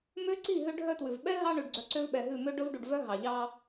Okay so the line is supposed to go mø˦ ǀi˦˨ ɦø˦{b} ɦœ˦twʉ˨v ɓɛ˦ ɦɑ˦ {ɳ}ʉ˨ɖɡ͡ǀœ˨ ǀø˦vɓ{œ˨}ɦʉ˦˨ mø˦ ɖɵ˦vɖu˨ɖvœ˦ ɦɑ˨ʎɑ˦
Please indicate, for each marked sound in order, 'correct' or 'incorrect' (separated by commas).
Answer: incorrect, correct, incorrect